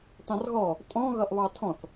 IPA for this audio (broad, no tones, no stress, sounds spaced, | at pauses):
t ɑ̃ r ɣ ɔ | tʼ ɔ̃ ɣ ʌ ʔ β ɑ tʰ ɔ̃ θ